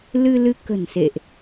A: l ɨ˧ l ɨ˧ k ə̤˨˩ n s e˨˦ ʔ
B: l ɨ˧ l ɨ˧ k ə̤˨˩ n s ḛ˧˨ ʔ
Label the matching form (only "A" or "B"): B